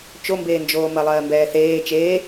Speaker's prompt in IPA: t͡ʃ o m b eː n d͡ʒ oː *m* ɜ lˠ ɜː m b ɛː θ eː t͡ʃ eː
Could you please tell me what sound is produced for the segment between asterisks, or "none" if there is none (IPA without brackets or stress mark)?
m